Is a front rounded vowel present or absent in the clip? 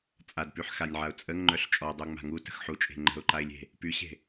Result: present